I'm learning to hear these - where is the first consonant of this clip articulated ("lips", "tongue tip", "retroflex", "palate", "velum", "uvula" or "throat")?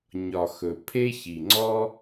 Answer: palate